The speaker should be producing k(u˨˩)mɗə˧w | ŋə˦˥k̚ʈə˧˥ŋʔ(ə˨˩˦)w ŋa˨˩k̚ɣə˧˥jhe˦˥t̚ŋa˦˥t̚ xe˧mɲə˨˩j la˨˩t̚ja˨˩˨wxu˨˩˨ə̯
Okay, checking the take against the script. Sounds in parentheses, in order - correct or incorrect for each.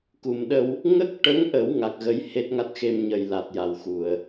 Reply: correct, correct

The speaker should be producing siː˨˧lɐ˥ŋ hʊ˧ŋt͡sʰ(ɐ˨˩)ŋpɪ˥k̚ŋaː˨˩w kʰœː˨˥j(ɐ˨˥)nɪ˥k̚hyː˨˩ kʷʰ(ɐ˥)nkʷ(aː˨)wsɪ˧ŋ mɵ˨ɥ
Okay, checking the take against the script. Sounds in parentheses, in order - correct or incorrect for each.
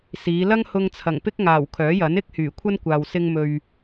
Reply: correct, correct, correct, correct

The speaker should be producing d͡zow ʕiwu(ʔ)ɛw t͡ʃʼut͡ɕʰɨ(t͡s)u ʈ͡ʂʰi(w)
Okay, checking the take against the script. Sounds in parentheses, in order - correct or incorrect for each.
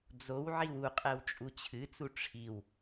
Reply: incorrect: qʼ, correct, correct

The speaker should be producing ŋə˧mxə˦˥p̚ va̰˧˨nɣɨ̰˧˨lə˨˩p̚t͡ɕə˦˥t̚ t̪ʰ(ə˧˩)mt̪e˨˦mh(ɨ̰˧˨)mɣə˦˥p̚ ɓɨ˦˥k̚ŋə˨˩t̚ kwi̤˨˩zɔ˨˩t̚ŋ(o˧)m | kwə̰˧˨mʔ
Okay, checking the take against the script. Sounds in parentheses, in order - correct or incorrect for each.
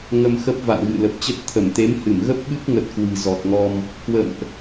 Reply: correct, incorrect: ɨ˧˩, incorrect: ɔ˧

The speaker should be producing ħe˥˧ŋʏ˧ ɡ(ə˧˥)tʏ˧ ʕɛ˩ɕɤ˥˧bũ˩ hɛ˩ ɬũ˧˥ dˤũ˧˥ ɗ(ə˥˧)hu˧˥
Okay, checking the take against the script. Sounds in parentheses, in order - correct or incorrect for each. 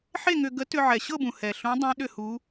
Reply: correct, incorrect: ʏ˥˧

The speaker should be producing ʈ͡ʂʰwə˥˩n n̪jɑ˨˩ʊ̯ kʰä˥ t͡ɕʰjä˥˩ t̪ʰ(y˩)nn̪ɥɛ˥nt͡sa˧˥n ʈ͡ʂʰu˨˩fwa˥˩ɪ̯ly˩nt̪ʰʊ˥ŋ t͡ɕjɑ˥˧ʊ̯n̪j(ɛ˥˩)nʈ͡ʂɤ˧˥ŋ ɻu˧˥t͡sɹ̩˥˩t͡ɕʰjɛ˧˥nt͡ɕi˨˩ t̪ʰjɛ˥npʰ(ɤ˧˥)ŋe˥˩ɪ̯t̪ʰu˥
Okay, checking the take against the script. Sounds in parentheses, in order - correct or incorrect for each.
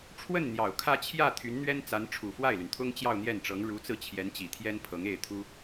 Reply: incorrect: y˧˥, correct, correct

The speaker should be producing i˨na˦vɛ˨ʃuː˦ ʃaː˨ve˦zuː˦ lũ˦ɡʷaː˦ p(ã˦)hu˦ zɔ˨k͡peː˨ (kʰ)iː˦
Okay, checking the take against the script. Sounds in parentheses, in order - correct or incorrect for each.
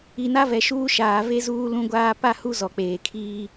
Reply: incorrect: a˦, correct

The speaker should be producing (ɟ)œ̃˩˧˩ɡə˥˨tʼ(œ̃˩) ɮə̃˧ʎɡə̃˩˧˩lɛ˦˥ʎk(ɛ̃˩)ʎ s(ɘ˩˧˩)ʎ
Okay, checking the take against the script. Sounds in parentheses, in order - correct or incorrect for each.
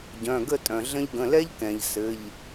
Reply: correct, correct, correct, correct

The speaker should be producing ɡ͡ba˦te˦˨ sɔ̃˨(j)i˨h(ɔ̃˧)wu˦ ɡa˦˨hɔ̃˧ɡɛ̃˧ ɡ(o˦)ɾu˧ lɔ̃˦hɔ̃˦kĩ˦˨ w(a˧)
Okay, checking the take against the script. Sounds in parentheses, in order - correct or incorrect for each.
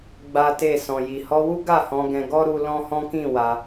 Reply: correct, incorrect: ɔ˧, incorrect: ɔ˦, correct

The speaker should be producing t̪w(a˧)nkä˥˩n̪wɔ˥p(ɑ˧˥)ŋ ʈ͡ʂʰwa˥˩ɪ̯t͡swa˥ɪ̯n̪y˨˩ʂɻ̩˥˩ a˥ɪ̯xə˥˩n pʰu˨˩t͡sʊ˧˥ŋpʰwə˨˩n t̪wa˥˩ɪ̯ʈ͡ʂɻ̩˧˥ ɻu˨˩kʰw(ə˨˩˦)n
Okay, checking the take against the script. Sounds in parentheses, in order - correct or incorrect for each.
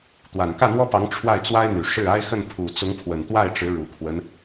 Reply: incorrect: a˨˩, correct, incorrect: ə˦

